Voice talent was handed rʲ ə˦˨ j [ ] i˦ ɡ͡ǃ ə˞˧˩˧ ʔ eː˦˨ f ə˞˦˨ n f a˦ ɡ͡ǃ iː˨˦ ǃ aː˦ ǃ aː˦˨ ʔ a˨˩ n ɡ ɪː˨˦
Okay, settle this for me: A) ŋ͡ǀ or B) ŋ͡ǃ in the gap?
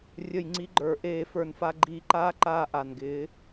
A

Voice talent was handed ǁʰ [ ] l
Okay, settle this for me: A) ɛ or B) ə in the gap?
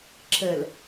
B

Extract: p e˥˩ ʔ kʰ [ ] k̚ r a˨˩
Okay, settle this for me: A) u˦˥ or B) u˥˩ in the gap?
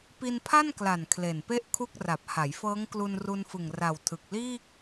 B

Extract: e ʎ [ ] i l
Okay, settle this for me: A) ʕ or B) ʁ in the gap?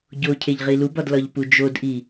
B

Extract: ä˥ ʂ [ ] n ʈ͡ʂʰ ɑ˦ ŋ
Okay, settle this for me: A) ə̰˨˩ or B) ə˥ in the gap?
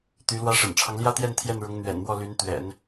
A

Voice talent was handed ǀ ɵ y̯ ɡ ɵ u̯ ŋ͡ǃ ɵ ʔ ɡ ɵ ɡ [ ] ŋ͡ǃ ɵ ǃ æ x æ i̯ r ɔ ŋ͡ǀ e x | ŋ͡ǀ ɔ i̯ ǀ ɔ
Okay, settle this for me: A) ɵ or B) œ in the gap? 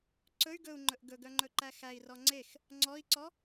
B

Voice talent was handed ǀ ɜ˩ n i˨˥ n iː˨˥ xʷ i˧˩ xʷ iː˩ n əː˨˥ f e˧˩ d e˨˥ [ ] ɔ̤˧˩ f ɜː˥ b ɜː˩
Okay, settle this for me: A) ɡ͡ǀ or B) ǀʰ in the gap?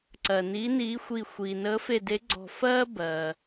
A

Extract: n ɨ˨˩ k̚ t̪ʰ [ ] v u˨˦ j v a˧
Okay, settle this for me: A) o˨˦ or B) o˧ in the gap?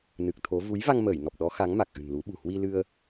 A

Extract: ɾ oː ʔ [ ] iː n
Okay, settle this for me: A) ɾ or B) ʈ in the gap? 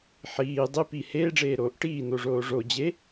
B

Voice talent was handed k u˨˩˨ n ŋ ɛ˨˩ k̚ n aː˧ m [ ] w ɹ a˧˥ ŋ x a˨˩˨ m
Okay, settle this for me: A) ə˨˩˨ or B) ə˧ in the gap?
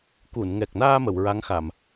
A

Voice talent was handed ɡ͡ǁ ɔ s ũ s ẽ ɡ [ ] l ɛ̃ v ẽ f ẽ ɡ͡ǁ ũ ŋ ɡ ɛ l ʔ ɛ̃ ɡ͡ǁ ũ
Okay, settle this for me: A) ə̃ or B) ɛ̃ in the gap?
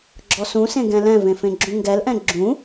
B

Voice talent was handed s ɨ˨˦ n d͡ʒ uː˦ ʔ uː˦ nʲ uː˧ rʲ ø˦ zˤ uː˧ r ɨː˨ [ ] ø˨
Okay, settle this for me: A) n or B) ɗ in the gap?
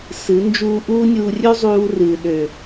B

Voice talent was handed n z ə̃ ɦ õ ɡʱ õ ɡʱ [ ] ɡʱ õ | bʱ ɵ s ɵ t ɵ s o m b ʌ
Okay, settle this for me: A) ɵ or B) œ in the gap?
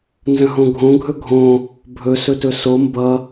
A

